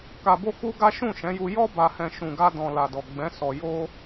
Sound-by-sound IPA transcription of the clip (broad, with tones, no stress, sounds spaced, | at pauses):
k a˧ b o˦ k u˦ ɡ a˦ ʃ ũ˦˨ ʃ ɛ̃˨˦ j u˧ j ɔ˦ b a˧ h ɛ̃˧ ʃ ũ˧ ɡ a˦ d ɔ̃˧ l a˨ d ɔ˨ ɡ͡b ɛ̃˨˦ s ɔ˧ j o˦